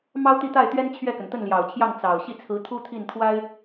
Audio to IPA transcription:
mɑ˥ʊ̯t̪i˥˧t̪a˥˩ɪ̯t̪ɥɛ˥n t͡ɕʰɥɛ˥˩kə˩n t̪ə˥˩nljɑ˨˩ʊ̯t͡ɕʰjɑ˥˩ŋ t͡sɑ˨˩ʊ̯ ɕi˥˩t͡sʰɹ̩˧˥t̪ʰu˥ t̪ʰi˥˩nt̪ʰwa˥ɪ̯

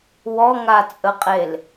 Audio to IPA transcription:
wɔŋat͡sʼəqʼel

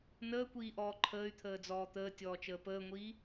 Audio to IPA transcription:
nəːkʷiːʔɔː ǃʰəːy̯t̪ʰəːd͡zɔː t̪əːtʲɔːt͡ʃəː pəːŋʷiː

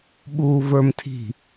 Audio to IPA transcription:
ɓuːvə˞mtʰi̤

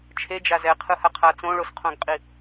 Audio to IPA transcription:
t͡ʃʰed͡ʒa zɛqʰɯhaqʰa t͡sõɭosqʰõɡqʼi

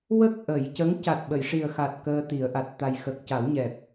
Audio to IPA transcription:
wə˦˥k̚ ʔə˨˩˨jcə˧˥ŋ ca˨˩t̚ɓə˨˩˨jʂi˨˩ə̯xa˨˩t̚ kəː˧t̪i˨˩˦ə̯ʔa˨˩t̚ t̪a˨˩jxə˨˩k̚ ca˨˩˦wɲɛ˨˩p̚

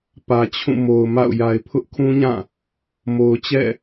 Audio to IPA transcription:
pä˨t͡ɕʰũ˦˨mo˨ʊ̯ma̰˦˨ʊ̯ ja˨ɪ̯pʰʊ˦ʔkʰũ˦ɲã˦˨ | mo˨ʊ̯t͡ɕɛ̰˦˨

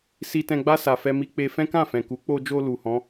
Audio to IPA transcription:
si˧tɛ̃˧ɡ͡ba˦ sa˧fɛ˦mi˦ k͡pe˧fɛ̃˦kã˦˨fɛ̃˨ ku˨˦k͡po˧d͡ʒo˧ lu˨hɔ̃˨˦

